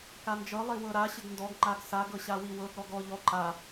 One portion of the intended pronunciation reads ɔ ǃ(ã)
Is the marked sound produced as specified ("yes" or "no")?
no